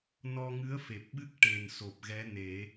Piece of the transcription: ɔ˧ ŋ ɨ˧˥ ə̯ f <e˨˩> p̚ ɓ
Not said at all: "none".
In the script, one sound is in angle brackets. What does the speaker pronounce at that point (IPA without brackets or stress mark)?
e˨˩